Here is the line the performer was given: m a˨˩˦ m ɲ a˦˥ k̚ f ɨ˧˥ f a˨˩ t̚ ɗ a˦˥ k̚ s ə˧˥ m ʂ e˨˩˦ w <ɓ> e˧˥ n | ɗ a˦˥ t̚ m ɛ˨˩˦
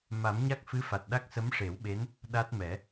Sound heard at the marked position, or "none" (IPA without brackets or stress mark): ɓ